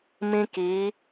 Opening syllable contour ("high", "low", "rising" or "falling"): high